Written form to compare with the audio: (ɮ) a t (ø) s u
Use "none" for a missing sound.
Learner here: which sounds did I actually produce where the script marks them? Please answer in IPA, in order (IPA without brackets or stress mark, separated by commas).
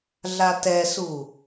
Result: ɮ, ɛ